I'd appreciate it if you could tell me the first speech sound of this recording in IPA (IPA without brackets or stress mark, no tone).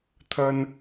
t̪ʰ